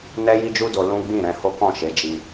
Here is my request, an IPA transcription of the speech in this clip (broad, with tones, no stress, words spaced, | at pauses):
nɛ˦ji˦d͡ʒu˦do˧ lũ˦ ɡ͡bĩ˦˨ɾɛ̃˧ho˦kɔ̃˦˨ ʃe˨˦d͡ʒi˧